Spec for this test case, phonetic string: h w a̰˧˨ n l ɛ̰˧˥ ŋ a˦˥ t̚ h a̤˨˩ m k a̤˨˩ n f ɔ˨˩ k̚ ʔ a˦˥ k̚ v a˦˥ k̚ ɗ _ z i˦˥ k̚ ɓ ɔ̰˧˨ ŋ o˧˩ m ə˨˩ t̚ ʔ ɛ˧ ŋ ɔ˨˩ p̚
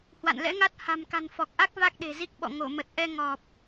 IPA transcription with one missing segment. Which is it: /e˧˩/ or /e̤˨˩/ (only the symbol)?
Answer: e̤˨˩